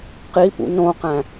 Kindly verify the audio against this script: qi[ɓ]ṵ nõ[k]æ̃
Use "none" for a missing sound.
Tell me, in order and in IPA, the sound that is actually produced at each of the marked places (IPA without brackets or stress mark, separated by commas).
p, q